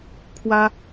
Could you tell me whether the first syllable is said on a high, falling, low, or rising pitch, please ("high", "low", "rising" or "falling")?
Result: high